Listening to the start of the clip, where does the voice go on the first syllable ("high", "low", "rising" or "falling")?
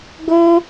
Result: high